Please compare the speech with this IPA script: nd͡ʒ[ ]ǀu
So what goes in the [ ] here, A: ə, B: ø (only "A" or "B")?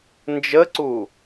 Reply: A